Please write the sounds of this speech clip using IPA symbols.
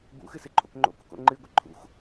b ṵ x ɨ s ɨ ǃʰ o̰ k ŋ͡ǃ o̰ k ṵ k o̰ ŋ͡ǃ ɨ ɡʷ ɨ ǃʰ ṵ x

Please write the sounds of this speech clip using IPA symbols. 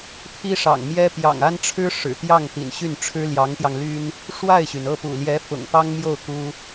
pʰ i˥ ʂ ɑ̰˨˩ ŋ m j ɛ˥ p j ɑ̰˨˩ ŋ a˥ n ʈ͡ʂʰ ɻ̩˥ ʂ ɻ̩˨˩ t̪ j ɑ˥˩ ŋ t̪ ḭ˨˩ n ɕ y˥˩ n ʈ͡ʂʰ ɻ̩˥ l j ɑ˧˥ ŋ t̪ j ɑ˧ ŋ l y˥ n | ʂ w a˥˩ ɪ̯ ɕ y˩ n ɤ˥˩ p ṵ˨˩ l j ɛ˧˥ f ʊ̰˨˩ ŋ p ɑ˥ ŋ m j o˥˩ ʊ̯ k u˥

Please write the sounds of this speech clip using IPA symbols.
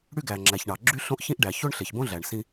ɽ y˥ ɡ æ˩ ŋ͡ǁ æ˩ ç ɳ ɑ˩ ɡ͡ǁ y˥ ɬ õ˥ ʔ ç ĩ˥ ʔ ɖ æ˩ ç o˥ ɳ ɬ e˩ ç b õ˥ ɮ æ˩ ɳ s ĩ˧

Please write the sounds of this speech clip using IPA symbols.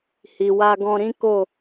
h i˨ w a˧ ɡ ɔ̃˧ ɾ ĩ˦ k o˦˨

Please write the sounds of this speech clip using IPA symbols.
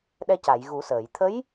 ɗ ɛ˧ c a˨˩˨ j ɣ u˨˩˦ s əː˨˩˨ j t̪ʰ ə˧˥ j

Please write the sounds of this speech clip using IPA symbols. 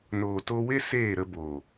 n oː˨ t o˧ w e˦ s eː˦˨ ɾ ə˧ b oː˨

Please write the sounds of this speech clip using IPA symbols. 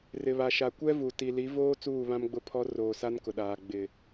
r ɪ˨ β a˨ ʃ a˨ kʷ ɛ˦ v u˨ t i˨ l i˨˦ v oː˦ t͡s uː˦˨ β ã˦ m ɡ͡b ʊ˦˨ pʰ ɔ˦ r oː˨ s a˦ n k ʊ˨ ɗ aː˨ ɡ͡b ɪ˨

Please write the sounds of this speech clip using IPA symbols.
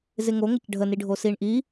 z ɪ ŋ o ŋ ə c ɖʱ ə n i ɖʱ o s i ɳ ʔ i

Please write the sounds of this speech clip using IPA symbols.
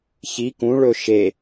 ç i k ũ ɭ ɵ ʃ e

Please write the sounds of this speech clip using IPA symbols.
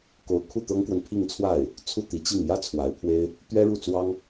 k o˧˥ ʊ̯ kʰ u˥˩ t̪ ɤ˥ ŋ k w ə˨ n pʰ i˥˧ ŋ t͡sʰ w a˥˩ ɪ̯ | t͡sʰ u˥˩ t̪ i˧˥ t͡ɕ i˥˩ ŋ j ä˥ t͡sʰ w a˧˥ ɪ̯ pʰ w e˥ ɪ̯ | t̪ ɥ ɛ˥ ɻ u˥˩ t͡s w ɑ˥ ŋ

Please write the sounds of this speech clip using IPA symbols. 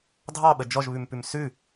dʱ ɑ ɓ ə d͡ʒ ɔ ʒ β ʉ m p ʉ m s ʉ

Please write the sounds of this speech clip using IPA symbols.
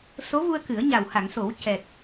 s o˧˥ v u˧ ə̯ k ɨ˨˩˦ ə̯ ɲ a˨˩ w h a˨˩˨ ŋ s o˨˩˦ w c ɛ˨˩ k̚

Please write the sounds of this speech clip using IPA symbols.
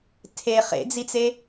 tʰ e χ ḛ d͡z i t͡s e

